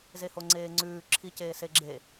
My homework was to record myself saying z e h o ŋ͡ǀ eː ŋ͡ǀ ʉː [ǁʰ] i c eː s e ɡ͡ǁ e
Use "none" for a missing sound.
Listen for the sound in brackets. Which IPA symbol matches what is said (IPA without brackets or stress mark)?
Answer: ǁʰ